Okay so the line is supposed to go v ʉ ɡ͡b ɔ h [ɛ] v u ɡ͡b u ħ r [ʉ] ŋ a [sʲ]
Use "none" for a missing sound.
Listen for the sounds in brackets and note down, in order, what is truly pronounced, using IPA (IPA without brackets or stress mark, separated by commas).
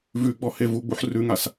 e, ʉ, s